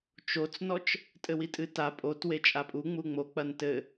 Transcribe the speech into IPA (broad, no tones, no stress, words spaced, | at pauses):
t͡ʃot͡snɔt͡ʃ | tʼɘwitʼɨta pʼotwe t͡ʃʼapʼu ŋ͡muŋ͡mo k͡pɐntɘ